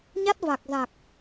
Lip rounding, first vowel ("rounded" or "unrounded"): unrounded